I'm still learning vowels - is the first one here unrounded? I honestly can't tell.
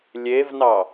yes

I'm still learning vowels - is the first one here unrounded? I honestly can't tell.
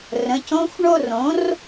yes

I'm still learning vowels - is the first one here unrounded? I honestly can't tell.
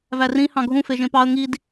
yes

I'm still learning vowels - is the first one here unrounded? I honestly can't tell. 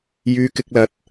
no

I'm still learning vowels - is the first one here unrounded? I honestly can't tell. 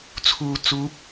no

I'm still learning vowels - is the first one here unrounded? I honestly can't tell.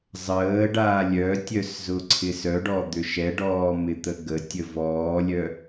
yes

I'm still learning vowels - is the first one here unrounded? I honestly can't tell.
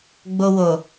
no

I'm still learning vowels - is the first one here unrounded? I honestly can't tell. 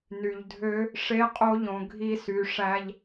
no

